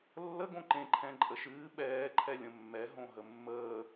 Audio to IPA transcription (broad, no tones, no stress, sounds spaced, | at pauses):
lː ə ɡ õ ǃ ẽ ǃʰ ɛ̃ ǃʼ ə ʃ ɨː ɓ ɛː ǃʰ ɛ lʲ ə̃ mː ɛ ɦ õ ɦ ə mː əː